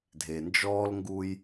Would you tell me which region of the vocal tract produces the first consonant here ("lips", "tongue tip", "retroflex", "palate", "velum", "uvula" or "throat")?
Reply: tongue tip